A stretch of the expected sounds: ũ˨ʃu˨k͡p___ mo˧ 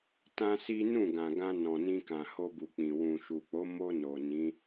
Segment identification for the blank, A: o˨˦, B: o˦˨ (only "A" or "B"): A